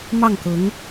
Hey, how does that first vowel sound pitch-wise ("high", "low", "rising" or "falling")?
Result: falling